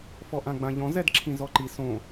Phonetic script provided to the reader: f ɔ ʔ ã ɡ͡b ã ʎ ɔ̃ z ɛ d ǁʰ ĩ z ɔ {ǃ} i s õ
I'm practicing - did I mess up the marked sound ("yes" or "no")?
no